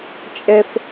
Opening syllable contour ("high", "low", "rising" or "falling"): high